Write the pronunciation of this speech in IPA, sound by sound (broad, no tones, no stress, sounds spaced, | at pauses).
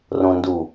r õ n d u